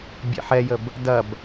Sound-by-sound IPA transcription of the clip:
bʲ ḛ ħ ɛ j ə b | d ɐ b

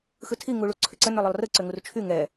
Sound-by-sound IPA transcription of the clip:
x ɯ tʰ i ŋ u ɭ u ǀʰ ʏ ǀ ə n ʏ lˠ ʏ lˠ r ɯ ǀ ʏ ŋ u r t͡ʃʰ y ŋ ɛ

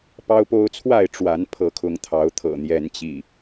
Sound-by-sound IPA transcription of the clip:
p ɑ˦ ʊ̯ p o˦ ʊ̯ t͡sʰ w a˥˨ ɪ̯ ʈ͡ʂ w a˨˦ n pʰ ɤ˨˦ kʰ ʊ˨˦ ŋ t̪ʰ ɑ˨˦ ʊ̯ t̪ʰ ɤ̰˨˩ n̪ j ɛ˨˦ n t͡ɕ ḭ˨˩

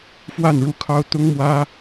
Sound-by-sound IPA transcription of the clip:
f w a˥˧ n ɻ u˥˩ kʰ ɑ˥ ʊ̯ t̪ ʊ˥ ŋ m w ä˥

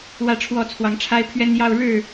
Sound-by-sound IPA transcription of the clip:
w ä˥˨ ʈ͡ʂʰ w ɔ˥˨ t͡sʰ w ɑ˨˦ ŋ ʈ͡ʂʰ a˦ ɪ̯ pʰ ɥ ɛ˦ n j ɑ˦ ʊ̯ ɻ ɻ̩˥˨

